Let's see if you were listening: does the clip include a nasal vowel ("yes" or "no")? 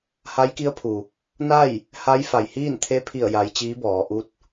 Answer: no